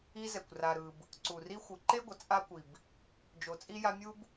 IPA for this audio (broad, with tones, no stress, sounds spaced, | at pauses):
i˦ z ɛ˩ kʷ r a˨ ɾ ɯ˨ b | ǀ u˩ r i˦ xʷ ɯ˩ ǃ e˥ ɡʷ ʌ˩ t͡sʼ a˥ kʷ i˩ b | d͡ʒ o˨ t͡sʼ i˥ j a˦ mʲ u˥ b